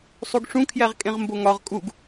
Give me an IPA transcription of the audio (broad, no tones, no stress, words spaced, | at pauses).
sˤuɡʂũkʰjæʁkʼẽʁ mboŋɒʁ kʼuɡ